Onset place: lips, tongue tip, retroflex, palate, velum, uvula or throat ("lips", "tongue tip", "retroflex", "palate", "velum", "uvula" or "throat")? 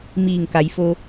lips